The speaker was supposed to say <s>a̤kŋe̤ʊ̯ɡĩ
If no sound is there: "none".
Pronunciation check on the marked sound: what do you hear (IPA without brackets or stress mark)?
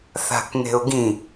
θ